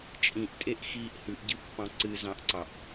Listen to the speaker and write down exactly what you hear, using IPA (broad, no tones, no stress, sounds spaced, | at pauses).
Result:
t͡ʃʼ ĩ ʔ tʼ e ʔ x i ʔ h ʉ ʔ ɟ ɨ pː ɑ̃ ǀ ɨ z ɑ̃ ʔ ǀ ɑ ʔ